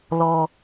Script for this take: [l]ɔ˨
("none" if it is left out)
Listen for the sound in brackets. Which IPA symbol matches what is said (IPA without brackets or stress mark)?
l